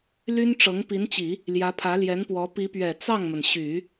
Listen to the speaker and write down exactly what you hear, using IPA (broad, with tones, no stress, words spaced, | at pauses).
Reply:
ly˥nʈ͡ʂɤ˧˥ŋ pi˧˥nt͡ɕi˨˩˦ | ljä˧˥pʰä˧˥ljɛ˧˥npwɔ˧˥ pi˧˥pɥɛ˨˩ t͡sɑ˥˩ŋmə˩nɕy˨˩˦